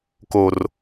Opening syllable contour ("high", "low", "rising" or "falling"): low